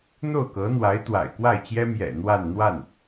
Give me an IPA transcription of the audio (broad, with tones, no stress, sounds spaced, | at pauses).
n̪ o˥˩ ʊ̯ k ɤ˧˥ n̪ w a˧˥ ɪ̯ t̪ w a̰˨˩ ɪ̯ k w a˥˩ ɪ̯ t͡ɕ j ɛ˥ m j ɛ̰˨˩ n̪ w a˥˧ n n̪ w a˥˩ n